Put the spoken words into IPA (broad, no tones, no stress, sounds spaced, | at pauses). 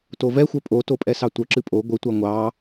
t o v ɛ xʷ œ pʼ o t o pʼ ɛ s ɑ tʷ œ ǁ ɨ pʼ o ɡʷ ɨ tʷ a ŋʷ ɑ